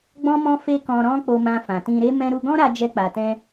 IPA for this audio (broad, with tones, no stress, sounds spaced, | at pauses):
ɡ͡b ɔ̃˦ m ɔ̃˦ f e˦ k ɔ̃˧ ɾ ɔ̃˦ k͡p o˧ m ã˧ f ã˨ t ĩ˧ ɾ e˦ m ɛ̃˦ ɾ u˧ ɡ ɔ̃˦ ɾ a˧ d͡ʒ ɛ˧ k͡p a˨ t ɛ̃˧